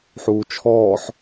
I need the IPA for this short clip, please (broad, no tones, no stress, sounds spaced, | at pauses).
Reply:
ħ uː t͡ʃʰ ɔː ħ